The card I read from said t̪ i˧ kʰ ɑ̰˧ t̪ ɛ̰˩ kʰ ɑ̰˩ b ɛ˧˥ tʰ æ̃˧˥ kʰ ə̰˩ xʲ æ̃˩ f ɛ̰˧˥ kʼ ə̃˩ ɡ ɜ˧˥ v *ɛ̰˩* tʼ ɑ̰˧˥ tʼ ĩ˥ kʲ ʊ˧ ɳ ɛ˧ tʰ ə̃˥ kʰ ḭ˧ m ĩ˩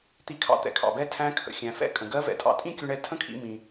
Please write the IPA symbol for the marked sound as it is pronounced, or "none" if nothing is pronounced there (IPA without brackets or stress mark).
ɛ̰˩